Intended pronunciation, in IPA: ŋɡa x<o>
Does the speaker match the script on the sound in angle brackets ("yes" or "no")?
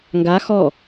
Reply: no